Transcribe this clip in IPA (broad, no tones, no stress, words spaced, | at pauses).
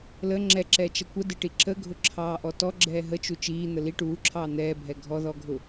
lə ŋ͡ǁɛǁɛt͡ʃʌ kʷədɪʈi ǁəɡʱʊǁʰɑːʔɔ tɔɡ͡ǁɛː ɦət͡ʃu t͡ʃiːn̪ə li ʈuːǁʰɑː n̪ɛːbʱɛ ɡʱɔðɔɡʱʊ